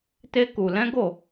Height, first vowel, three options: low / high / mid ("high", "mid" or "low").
mid